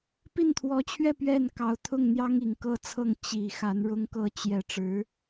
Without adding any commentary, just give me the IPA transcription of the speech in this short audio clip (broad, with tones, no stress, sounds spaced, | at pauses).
p i˥˩ n t̪ʰ w ɔ˧˥ t͡ɕʰ ɥ ɛ˥˧ p ɥ ɛ˥˩ n k ɑ˧˥ ʊ̯ t̪ʰ ʊ˥˩ ŋ n̪ j ɑ˥ ŋ i˨˩ ŋ k ɤ˥˧ t͡sʰ ɤ˥˩ ŋ t͡ɕ i˨˩ x a˧˥ n ɻ ʊ˥ ŋ k ɤ˥˧ t͡ɕ j ɛ˥˩ ʈ͡ʂ ɻ̩˧˥